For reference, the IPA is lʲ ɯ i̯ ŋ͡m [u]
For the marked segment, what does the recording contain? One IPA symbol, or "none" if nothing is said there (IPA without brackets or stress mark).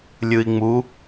u